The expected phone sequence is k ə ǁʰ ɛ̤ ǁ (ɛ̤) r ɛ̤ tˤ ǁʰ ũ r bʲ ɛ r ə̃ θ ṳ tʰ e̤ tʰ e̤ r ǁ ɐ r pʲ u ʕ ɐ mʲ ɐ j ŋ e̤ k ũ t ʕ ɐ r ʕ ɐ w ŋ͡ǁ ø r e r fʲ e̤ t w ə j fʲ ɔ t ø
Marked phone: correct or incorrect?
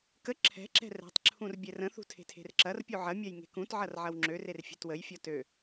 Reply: correct